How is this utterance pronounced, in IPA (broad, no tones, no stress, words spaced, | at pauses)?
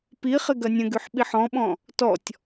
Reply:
piχɪ ɡɐnʲɐ̃ɡyħ ɓiħɔ̃ɓɔ̃ | tɔtʲ